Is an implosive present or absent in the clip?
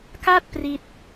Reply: absent